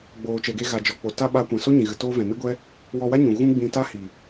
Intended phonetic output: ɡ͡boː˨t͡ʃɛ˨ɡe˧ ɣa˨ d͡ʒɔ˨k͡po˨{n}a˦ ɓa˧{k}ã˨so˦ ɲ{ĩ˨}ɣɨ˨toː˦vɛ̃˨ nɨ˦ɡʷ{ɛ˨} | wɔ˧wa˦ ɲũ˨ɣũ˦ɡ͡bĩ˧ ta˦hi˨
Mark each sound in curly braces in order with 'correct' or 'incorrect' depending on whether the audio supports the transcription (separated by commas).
incorrect, incorrect, correct, incorrect